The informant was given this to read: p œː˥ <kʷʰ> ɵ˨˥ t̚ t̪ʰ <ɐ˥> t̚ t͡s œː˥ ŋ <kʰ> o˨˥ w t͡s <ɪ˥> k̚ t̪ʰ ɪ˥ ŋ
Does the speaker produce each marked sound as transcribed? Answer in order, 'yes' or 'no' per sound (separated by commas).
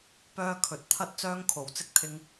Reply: no, yes, yes, yes